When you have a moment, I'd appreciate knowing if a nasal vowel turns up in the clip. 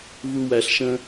yes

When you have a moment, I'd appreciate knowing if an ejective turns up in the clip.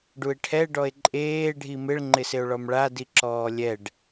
yes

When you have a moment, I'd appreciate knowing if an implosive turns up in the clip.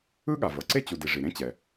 yes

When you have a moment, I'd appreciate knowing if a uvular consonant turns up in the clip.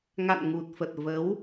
no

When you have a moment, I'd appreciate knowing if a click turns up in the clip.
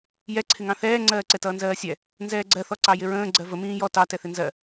yes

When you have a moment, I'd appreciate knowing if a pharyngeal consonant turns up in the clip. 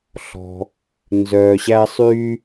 no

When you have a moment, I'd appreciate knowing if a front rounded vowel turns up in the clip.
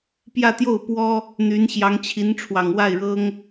yes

